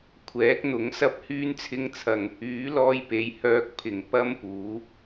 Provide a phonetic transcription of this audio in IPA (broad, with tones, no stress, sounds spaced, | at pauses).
kʷʰ ɛː˨˥ k̚ n̪ ʊ˨˥ ŋ s ɐ˥ p̚ h yː˥ n t͡sʰ ɪ˥ ŋ t͡sʰ ɐ˧ ŋ | yː˨˥ l ɔː˧ j p e˨˧ j h œː˧ k̚ pʰ ɪ˨˩ ŋ p ɐ˥ m p uː˨˥